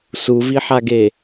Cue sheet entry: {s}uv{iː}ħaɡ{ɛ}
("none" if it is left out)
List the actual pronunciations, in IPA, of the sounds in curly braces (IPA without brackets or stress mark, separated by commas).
s, i, e